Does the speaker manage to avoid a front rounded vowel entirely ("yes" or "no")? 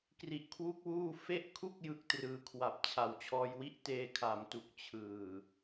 yes